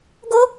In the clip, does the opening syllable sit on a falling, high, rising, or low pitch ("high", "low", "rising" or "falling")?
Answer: high